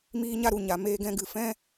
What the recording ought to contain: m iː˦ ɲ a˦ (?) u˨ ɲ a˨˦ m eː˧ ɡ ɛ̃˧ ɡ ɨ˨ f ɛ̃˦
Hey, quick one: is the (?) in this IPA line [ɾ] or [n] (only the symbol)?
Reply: ɾ